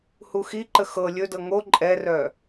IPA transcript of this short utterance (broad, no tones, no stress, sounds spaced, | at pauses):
h u x i ǃ ə x ɤ lʲ ɵ d ɤ ŋ o ǃʼ ɛ r œ